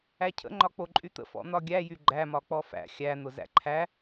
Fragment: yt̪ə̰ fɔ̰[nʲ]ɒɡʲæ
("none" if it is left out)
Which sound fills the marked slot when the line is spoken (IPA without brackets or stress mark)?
n̪